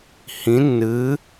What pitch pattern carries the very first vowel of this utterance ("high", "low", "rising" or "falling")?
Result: rising